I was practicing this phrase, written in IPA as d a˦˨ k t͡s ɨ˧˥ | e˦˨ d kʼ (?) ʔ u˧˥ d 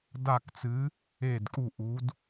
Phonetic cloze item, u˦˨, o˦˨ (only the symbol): u˦˨